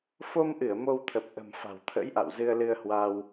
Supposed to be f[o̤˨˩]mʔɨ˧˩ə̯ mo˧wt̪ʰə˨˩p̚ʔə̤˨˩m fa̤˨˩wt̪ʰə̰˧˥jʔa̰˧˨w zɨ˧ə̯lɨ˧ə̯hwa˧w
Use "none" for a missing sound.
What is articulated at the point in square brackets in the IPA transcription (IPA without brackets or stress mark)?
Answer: o˧